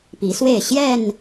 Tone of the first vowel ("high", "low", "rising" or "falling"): rising